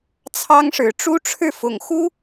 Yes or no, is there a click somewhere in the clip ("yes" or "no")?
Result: no